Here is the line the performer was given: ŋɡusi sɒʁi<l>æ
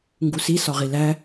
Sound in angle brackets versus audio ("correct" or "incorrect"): correct